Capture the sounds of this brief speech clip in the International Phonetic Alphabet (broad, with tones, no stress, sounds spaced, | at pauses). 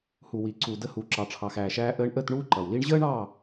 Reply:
h u˨ w i˨ ǀ u˨ d ə˧ h uː˨ ǁ ɑ˨ ʈ͡ʂʰ ɑ˨ x æː˨ ʃ æː˧ ʔ əː˧ ɳ ʔ əː˦˨ t ɳ uː˦ ǃ ʌ˨ w l i˦ ɳ ʑ əː˦ ɳ ɑ˦˨